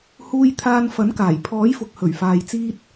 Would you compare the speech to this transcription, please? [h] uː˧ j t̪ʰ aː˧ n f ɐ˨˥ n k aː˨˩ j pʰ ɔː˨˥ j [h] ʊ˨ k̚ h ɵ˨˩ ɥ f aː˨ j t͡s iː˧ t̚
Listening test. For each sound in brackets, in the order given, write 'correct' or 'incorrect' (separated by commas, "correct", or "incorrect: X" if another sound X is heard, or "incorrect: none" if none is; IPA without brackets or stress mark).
correct, incorrect: f